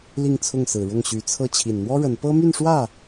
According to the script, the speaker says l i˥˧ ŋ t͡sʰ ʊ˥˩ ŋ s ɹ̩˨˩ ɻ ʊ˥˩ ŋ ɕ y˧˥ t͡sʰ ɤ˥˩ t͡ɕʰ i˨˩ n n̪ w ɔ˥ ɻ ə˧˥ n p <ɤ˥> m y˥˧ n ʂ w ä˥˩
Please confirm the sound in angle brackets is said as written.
yes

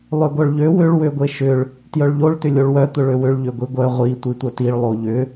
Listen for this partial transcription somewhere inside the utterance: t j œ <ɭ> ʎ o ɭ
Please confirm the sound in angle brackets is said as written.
yes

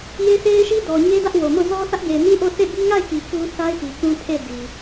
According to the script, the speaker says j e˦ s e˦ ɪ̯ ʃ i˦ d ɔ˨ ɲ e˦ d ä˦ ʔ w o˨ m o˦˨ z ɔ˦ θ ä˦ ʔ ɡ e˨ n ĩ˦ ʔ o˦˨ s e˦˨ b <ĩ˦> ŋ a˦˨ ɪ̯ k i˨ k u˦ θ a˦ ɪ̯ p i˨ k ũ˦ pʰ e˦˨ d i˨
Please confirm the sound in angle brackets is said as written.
no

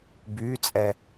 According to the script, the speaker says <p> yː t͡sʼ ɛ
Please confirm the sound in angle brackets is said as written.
no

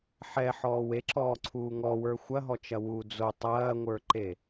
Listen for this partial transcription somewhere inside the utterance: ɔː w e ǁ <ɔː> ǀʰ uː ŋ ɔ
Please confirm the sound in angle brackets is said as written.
yes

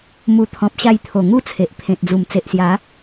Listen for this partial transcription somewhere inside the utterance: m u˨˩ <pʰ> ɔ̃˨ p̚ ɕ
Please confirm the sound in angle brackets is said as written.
no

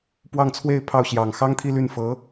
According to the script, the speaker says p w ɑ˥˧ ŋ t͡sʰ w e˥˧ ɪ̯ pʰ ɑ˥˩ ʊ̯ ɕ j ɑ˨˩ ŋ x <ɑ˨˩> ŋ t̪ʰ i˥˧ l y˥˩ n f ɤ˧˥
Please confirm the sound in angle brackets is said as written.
no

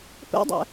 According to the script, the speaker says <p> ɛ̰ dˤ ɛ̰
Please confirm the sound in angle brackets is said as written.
yes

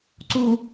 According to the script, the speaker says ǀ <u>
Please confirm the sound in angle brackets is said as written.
yes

